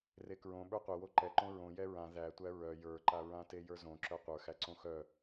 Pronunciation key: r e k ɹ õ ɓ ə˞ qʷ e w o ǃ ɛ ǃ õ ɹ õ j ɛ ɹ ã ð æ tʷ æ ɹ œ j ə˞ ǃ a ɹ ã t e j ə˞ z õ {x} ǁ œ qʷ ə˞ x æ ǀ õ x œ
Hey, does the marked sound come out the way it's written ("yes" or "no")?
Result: no